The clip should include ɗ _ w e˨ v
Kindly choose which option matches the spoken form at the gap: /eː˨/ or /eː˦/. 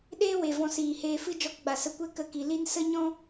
eː˦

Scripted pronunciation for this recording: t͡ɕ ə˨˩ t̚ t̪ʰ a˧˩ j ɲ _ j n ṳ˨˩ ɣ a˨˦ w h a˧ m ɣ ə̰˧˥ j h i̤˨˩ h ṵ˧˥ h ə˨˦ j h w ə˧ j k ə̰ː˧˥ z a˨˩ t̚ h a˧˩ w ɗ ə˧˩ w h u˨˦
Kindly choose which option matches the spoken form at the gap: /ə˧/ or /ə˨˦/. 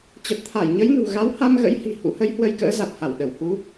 ə˨˦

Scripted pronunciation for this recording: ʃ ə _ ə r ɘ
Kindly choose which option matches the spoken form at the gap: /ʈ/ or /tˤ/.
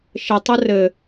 tˤ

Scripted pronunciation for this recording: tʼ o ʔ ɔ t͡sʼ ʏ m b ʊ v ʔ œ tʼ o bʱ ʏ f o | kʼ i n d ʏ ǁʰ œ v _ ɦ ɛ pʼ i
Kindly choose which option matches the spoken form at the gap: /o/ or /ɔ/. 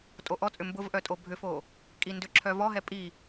ɔ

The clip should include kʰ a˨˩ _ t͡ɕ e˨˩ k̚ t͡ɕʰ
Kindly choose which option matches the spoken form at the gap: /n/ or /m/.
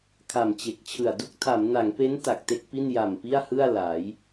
m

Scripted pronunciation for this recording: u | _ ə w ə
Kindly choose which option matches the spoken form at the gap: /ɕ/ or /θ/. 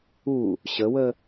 ɕ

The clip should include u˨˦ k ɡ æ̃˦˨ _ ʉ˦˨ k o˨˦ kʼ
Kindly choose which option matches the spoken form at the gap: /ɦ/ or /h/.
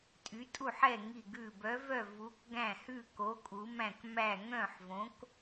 h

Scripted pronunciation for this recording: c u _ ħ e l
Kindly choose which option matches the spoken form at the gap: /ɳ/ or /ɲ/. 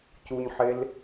ɲ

